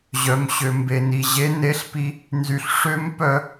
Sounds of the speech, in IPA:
ʑ œ˨ m ɕ ø˨ m b e˨ n i˨ ʑ e˨˦ n e˨˦ ɬ p i˧ | n z y˨ ɬ ʂ ø˦ m p œ˧

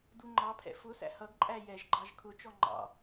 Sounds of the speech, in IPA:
d u ŋ͡ǃ ɑ pʰ ɛ̰ f ʊ s æ̰ h ʌ ɡ ǃʼ æ j ɛ ʒ ɡ͡ǃ ɑ ʒ kʰ ʊ t͡ʃ ɔ ŋ͡ǃ ɑ̰

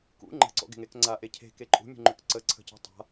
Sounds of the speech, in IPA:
k ṵ ŋ͡ǃ ə̤ ǀ ɔ̰ ɡ e̤ ŋ e k ŋ͡ǀ a ʔ e cʰ e̤ k e ǃʼ ṳ mʲ ṳ ŋ͡ǃ ʏ k ǀ ə ǀʰ ə̤ c a̤ tˤ a̤

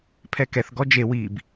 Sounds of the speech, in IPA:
pʰ ɛ k ɛ θ ɡ ɔ d͡ʒ e w i b

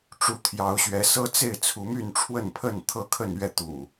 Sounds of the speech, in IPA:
ʈ͡ʂ u˨˦ t̪ʰ j ɑ˨˦ ʊ̯ ɕ ɥ ɛ˨˦ s ɤ˦ t͡s e˥˨ ɪ̯ t͡sʰ u˨˦ m y˥˨ n ʈ͡ʂʰ w ə˥˨ n pʰ ə˥˨ n t̪ʰ ɤ˦ kʰ ə˥˨ n ɥ ɛ˥˨ t̪ ṵ˨˩

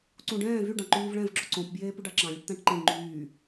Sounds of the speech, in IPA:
ǀ ũ ɖ ɛ̃ː v y ɖ ɑ̃ ǃ yː v ɭ ɛ̃ v ɡ͡ǁ o ǀ õ p b j eː p ʉ ɖ ɑ ǁ ɑ̃ lʲ e ʈ t̪ æ̃ ʈ ǃ ẽ ŋ͡ǃ yː

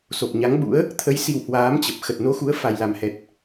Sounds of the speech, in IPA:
s o˨˩ p̚ ɲ a˨˦ ŋ ɓ ṵ˧˥ ə̯ | t̪ʰ ə˨˦ j s i˨˩ w h w aː˨˦ m t͡ɕ ə˨˩ p̚ x ə˨˩ t̚ n o˨˦ x u˨˦ ə̯ f a˨˩ j l a˨˩ m h ɛ˨˩ t̚

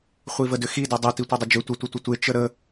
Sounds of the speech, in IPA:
χʷ i v ə d ʏ x i d ɛ dˤ ʏ t i tʷ e dˤ ʏ d͡ʒ ʏ tʷ ə tʷ ə tʷ ə tʷ e t͡ʃ ə ɾ ə

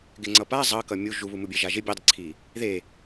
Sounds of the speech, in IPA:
ɡ ɪ ŋ͡ǀ ʌ p a zˤ ʌ k ʌ mʲ u ʒ u β u m u bʲ e ʒ a ʒ ɪ bʲ e dˤ ɪ ǀʰ i | ð e

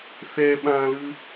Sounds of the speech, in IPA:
θ ɛ ɓ ã l ɯ

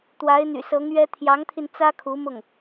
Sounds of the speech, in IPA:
t̪ w a˧˥ ɪ̯ n̪ y̰˨˩ s ɤ˧˥ ŋ ɥ ɛ˥ t̪ʰ j ɑ˧˥ ŋ t̪ʰ i˧ n t͡s ä˥ kʰ u˧˥ m ʊ˥˩ ŋ

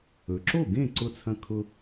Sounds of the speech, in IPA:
ɵ˩ ǁ o˥˩ ɡ ẽ˥˩ ǀ ʊ˧ t͡sʰ ɐ̃˧ kʰ ʊ˧

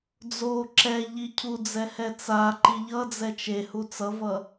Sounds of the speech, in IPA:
d͡z o ǁ ɛ ʎ i cʰ u d͡z ɛ h ɛ t͡s a ǃ i ʎ ʌ d͡z ɛ t͡ʃ e h u t͡s ʌ v ʌ

